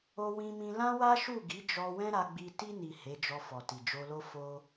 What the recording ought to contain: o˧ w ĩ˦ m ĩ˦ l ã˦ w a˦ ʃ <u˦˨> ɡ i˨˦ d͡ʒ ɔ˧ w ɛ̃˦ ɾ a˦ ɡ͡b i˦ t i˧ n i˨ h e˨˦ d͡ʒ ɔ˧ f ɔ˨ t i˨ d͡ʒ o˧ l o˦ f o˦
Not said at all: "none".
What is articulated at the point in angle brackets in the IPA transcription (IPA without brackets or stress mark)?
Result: u˦˨